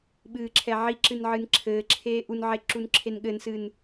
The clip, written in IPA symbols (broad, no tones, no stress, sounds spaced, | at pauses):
ɓ ɨː ǁʰ ɛ ʕ i ǁ ɨ n ʕ ɨ n ǁʰ ɘː ǁʰ eː ʔ u n ʕ e ǁ u n ǁʰ e n ɠ ɘ n s ɨ n